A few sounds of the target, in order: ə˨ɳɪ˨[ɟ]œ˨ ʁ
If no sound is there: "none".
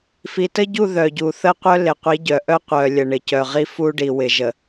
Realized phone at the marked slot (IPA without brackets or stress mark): c